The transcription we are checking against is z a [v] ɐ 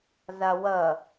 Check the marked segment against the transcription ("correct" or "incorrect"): incorrect